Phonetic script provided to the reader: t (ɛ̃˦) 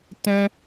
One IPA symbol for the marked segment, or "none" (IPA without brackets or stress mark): ɛ̃˦